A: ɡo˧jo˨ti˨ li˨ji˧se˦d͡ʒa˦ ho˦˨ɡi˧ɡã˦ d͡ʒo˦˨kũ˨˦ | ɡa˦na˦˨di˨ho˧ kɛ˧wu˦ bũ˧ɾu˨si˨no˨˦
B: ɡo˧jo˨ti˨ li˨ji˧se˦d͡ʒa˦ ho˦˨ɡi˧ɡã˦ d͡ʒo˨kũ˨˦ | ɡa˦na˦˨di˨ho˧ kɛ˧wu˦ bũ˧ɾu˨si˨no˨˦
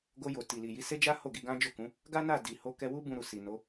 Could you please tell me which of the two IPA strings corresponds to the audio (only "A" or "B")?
A